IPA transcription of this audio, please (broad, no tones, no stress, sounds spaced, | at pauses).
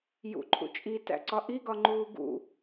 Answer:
j ṵ ǃʰ ṵ t͡ʃʼ i t æ̰ ǀ ɒ ʔ i ɡ ɒ ŋ͡ǃ uː ɡ ṵ